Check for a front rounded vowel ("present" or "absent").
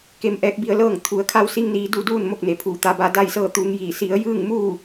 absent